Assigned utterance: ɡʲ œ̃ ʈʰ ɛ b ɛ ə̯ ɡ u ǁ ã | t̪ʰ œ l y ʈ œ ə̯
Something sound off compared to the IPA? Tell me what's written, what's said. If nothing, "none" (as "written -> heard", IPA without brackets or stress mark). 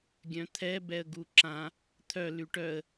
ʈʰ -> t̪ʰ